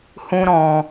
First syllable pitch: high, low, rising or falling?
high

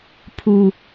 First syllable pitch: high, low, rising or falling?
low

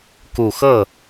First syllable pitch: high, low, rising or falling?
low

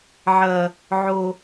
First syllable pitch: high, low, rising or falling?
low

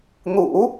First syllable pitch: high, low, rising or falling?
low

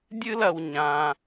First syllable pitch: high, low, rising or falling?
high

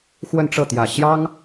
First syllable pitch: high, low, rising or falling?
falling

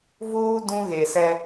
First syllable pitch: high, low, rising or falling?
high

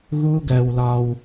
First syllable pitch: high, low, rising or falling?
high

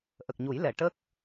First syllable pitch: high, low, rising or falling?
low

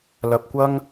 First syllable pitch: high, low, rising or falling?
low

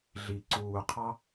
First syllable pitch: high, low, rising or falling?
low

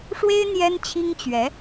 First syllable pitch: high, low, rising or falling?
high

